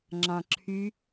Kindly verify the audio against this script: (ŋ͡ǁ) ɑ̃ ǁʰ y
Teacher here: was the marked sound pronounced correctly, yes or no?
yes